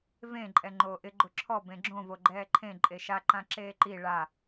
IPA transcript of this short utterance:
v ẽ ǃʼ ɛ ŋ͡ǃ oː ʔ ɪ ɡ͡ǃ ʊ ǁʰ ɔ b ẽ ɡ͡ǁ õ v o ɡ͡ǃ ɛː ǃʰ ẽ ǃʼ e ʃ a ǃ ã ǁ eː ǃ i ɭ a

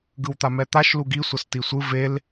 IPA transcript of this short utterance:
ɡ ɯ w t̪ a m ɛ t̪ a ʃ l u ɡ i sʷ ʌ s t i sʷ ɯ v e l

